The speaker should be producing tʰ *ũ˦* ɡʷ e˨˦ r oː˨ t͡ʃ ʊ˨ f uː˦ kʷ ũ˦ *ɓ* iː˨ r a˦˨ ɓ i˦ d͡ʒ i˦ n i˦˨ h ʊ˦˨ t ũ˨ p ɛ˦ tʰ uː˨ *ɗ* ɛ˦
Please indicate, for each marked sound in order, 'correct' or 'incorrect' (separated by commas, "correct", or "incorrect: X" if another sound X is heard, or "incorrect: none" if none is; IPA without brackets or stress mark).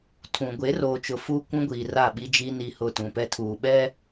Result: incorrect: ũ˨, incorrect: ɡʷ, incorrect: ɓ